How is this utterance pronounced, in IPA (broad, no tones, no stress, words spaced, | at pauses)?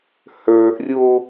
hə˞ʔrʲo